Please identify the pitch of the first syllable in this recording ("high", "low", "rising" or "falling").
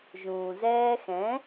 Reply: low